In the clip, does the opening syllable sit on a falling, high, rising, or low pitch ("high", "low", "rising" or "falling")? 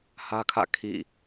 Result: high